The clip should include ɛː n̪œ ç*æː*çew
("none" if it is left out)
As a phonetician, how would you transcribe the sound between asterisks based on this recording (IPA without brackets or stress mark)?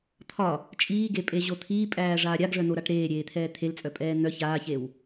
aː